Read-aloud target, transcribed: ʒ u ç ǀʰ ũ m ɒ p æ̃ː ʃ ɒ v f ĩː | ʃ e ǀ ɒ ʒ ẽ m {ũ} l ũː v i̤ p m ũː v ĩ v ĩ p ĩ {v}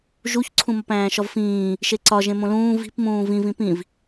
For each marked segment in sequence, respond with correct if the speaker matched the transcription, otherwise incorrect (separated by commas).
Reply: incorrect, correct